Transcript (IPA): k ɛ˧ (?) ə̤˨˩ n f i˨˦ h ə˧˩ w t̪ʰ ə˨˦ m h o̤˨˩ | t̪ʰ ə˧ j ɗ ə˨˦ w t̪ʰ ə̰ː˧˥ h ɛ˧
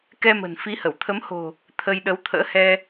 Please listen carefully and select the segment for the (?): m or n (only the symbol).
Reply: m